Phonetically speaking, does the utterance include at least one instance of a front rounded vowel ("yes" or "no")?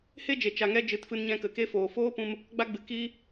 no